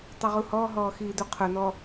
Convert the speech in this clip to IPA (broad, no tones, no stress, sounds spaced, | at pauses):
tˤ u ʁ u h ɔ ɦ ɔː x iː d u qʰ ʊ n ɔ